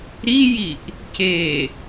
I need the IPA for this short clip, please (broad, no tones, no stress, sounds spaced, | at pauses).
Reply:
ɾ i j i ʔ | c e